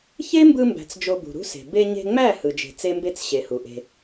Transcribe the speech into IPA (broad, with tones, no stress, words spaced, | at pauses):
çe˦mbɯ˧mbæ̤˨t͡s d͡ʒo˧bṳ˨ɾṳ˦se̤˨ be˧ɲe̤˧ŋ͡mæ˦˨ hɯ˨d͡ʒe̤˨t͡se˦mbe˦t͡s ɕe˨hu˨ʔe̤˧